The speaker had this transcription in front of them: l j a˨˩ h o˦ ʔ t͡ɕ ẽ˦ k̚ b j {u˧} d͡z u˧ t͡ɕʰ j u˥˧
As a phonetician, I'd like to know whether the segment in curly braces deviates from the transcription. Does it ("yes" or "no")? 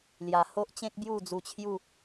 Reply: yes